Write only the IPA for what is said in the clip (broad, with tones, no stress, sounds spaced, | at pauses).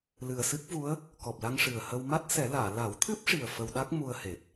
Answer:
l ɨ˨˩ ə̯ s ɨ˦˥ k̚ v u˧˥ ə̯ | k ɔ˨˩ p̚ l a˧ ŋ ʂ ɨ˨˩ ə̯ h ə˧ w m a˦˥ t̚ s ɛ˨˩˦ l aː˨˩˨ l a˨˩˦ w t̪ʰ ɨ˦˥ p̚ ʂ i˨˩ ə̯ f ə˧ w ɗ a˦˥ k̚ m u˧ ə̯ h e˨˩ t̚